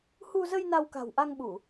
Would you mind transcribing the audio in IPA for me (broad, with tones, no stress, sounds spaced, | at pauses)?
h u˧ z ə˧ j n a˧ w k a̤˨˩ w ʔ a˧ ŋ ɓ u˧˩˨